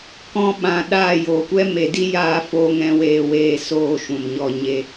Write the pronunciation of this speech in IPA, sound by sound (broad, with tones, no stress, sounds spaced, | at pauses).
k ɔ̃˧ ɓ ã˨ ɗ aː˦˨ j oː˨ kʷ ɛ˦ m e˨ d i˦ j aː˧ f oː˧ ŋ ɛ̃˧ w eː˧ w eː˦˨ s oː˦˨ ʃ ũ˨ m ɲ ɔ˧ ɲ e˧